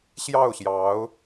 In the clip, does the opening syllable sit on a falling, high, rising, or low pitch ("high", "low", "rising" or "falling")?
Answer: falling